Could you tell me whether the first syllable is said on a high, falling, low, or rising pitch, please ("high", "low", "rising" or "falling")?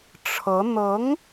rising